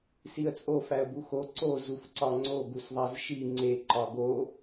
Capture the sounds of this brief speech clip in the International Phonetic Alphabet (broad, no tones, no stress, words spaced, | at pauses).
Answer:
siə̯t͡sʼo fæə̯buxo ǀo zufǀɒŋ͡ǀo ɡusðˤæzʃi ŋ͡ǀe ǃɒɡo